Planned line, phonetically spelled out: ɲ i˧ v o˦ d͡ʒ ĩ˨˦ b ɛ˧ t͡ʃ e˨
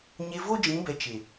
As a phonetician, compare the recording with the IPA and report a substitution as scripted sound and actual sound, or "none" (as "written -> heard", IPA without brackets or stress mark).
i˧ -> e˧